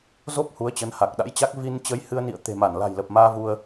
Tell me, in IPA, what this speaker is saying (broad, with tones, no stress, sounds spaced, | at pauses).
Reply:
z o˦˥ p̚ h u˨˦ ə̯ t͡ɕ ə˨˦ n h a˨˩ k̚ ɗ a̰˧˥ j t͡ɕ a˦˥ k̚ v i˧ n t͡ɕ ə˨˦ j h ɨ˧ ə̯ n ḭ˧˨ ə̯ t̪ e̤˨˩ m a˧˩ n l a̤˨˩ j l ə˨˩ p̚ m aː˧ v u˧ ə̯